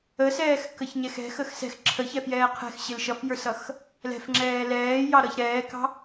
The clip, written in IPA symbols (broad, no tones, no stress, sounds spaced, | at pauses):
ə s ɛː x k ə ç ɲ ɛ x ɛ̤ x ə x s ɛ̤ x ǁʰ ə ç ɛ f j ɛː qʰ ɛ̤ x ɕ ɪ l ʃ ʌ f j ə˞ s ʌ x | l ɛ̤ f ŋ͡ǁ ɛː l ɛː j ɑ ɾ ʌ ç ɾ ɛː k ɑ̤